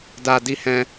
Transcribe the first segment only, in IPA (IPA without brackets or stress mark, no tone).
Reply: d